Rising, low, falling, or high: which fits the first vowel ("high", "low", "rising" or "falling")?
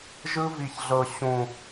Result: high